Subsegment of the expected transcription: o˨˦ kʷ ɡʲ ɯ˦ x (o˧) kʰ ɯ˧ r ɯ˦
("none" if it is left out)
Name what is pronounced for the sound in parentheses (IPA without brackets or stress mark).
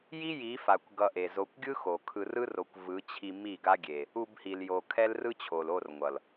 o˨